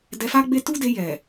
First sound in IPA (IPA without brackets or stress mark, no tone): d